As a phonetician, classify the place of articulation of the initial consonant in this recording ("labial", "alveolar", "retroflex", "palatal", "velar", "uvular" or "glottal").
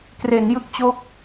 velar